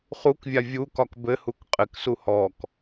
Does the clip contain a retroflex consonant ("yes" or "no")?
no